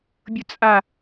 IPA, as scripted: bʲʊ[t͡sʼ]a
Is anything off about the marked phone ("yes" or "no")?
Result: no